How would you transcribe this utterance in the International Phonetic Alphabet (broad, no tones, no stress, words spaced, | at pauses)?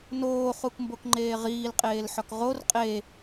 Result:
noːχukmbokŋ͡ǃeː ʁiːlqʼeːlħɒk ʁor qʼe